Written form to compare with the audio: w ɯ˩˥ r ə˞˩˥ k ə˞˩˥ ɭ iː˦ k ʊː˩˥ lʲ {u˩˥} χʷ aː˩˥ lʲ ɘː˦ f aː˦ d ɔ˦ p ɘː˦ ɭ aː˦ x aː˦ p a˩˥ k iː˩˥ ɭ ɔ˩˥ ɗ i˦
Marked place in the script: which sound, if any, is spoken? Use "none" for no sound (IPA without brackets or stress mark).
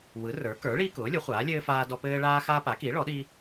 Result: ʊ˩˥